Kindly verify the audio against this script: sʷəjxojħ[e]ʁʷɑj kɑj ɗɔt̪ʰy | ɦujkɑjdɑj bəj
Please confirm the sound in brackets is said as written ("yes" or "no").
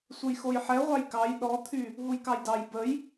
no